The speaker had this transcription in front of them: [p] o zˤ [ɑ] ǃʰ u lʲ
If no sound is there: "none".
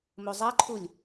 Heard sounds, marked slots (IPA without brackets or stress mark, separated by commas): m, a